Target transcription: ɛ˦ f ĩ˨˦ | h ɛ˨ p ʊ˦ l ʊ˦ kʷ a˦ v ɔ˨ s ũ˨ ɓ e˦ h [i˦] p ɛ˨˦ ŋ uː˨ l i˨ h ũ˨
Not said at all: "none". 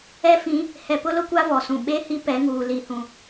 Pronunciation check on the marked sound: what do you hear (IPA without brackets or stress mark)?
i˦